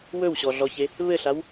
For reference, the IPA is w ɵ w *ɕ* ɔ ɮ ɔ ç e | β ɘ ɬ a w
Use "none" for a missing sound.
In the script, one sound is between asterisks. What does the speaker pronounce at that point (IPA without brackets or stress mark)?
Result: ɕ